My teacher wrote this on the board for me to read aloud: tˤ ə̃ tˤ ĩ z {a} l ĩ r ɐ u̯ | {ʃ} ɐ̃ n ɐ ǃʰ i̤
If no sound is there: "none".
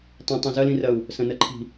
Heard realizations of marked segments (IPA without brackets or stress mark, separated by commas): ɐ, s